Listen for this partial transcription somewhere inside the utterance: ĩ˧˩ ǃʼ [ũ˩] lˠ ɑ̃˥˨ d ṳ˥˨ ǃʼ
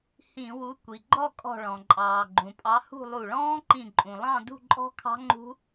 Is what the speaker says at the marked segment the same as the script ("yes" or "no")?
yes